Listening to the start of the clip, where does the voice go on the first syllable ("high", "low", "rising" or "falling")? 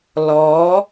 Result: rising